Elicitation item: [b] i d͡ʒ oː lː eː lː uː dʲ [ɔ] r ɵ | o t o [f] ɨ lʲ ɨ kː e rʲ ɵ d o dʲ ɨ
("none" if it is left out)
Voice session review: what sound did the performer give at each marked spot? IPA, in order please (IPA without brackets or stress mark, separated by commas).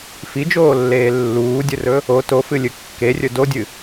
f, ɵ, f